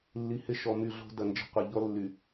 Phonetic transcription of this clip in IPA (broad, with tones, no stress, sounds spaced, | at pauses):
lː i˨ h ɪ˦˨ ʃ ɔ˨ m y˦˨ ɮ o̤˦ d ɐ˨ n d͡ʒ ə̤˦ qʷ ɪ˨ ʎ ɔ˦ lː y˨